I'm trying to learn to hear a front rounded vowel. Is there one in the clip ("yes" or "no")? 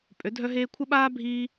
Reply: yes